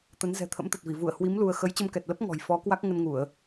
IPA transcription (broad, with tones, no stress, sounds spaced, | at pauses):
t̪ ə˨˦ n z ɛ̤˨˩ t̪ʰ ə̰˧˥ m t̪ ə˨˩ t̚ v i˧˩ v u˧˩ ə̯ h w i˨˦ m l u˧ ə̯ x ə˨˦ j t͡ɕ ə˧ m k ɛ˨˩ t̚ l ə˦˥ p̚ ŋ ɔ̤˨˩ j f ɔ˨˦ k w a˦˥ k̚ ŋ ə˧ n ŋ u˧˩˨ ə̯